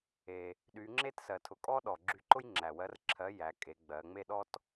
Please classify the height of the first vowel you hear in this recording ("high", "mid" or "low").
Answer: mid